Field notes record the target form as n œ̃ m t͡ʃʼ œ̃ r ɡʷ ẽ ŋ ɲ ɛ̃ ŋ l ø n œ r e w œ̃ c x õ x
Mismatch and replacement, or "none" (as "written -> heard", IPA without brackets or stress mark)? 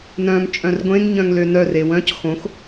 ɛ̃ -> œ̃